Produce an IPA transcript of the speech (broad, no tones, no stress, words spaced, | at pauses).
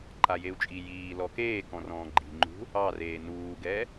ǃajeu̯t͡ʃʼi jiː lɔkeːkɔ̃ rɔ̃ːɡ͡ǃi̤ŋ͡ǃṳ | ɑreː nuːɡɛ